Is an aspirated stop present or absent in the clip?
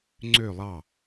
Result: absent